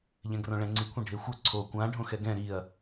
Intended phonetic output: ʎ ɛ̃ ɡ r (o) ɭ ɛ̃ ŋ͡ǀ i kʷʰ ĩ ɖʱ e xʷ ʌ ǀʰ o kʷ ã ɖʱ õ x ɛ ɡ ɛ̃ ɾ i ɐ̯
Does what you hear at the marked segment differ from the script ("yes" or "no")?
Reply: yes